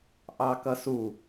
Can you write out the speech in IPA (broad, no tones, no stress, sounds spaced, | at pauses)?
ʔ ɑ k ʌ s u